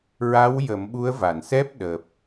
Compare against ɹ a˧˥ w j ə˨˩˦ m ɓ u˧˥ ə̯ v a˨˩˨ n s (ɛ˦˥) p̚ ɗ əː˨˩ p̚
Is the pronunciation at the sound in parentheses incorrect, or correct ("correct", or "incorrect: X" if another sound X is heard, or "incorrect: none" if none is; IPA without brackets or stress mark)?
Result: correct